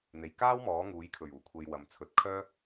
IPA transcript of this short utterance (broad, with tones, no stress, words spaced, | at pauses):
n̪e˨˩jkaː˥w mɔː˨˥ŋuː˨˥jkʰɵ˨˩ɥ uː˨˩kʷʰe˧j wɐ˨˧mt͡sʰɵ˨˥t̚ kʰœː˥